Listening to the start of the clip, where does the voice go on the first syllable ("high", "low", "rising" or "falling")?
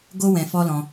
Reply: high